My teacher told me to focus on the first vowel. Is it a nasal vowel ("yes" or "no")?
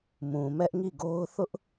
yes